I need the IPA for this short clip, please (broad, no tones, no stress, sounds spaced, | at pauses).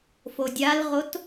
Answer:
f o dʲ a l ʁ o t